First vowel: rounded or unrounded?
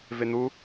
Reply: unrounded